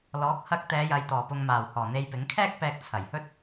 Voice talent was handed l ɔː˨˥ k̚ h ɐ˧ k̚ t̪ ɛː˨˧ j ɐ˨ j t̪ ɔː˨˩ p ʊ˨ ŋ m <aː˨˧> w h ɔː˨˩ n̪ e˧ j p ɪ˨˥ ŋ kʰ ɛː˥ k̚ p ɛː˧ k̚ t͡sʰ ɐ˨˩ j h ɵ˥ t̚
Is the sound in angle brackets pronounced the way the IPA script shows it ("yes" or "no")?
no